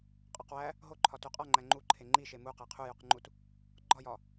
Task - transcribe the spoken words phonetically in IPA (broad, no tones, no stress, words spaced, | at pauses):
qʼɒqwæ | ɦoǃʰɒ tuqʼɒŋ͡ǃæ ŋ͡ǃuǃʰe ŋ͡ǃiʃe mu qæqʰujuqŋ͡ǃut | ɡ͡ǃɒjɒ